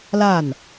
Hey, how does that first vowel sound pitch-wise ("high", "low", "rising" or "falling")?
falling